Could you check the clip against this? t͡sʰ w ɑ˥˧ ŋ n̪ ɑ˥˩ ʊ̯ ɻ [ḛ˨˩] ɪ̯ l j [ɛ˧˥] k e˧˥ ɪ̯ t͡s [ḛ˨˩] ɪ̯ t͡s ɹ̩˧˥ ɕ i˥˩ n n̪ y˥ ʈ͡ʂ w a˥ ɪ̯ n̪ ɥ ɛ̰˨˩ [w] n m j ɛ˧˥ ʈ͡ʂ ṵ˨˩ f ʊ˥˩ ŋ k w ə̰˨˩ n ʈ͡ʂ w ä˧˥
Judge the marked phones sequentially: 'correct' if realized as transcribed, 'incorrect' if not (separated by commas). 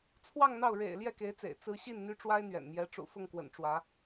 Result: correct, incorrect, correct, incorrect